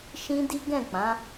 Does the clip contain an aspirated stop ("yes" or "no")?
no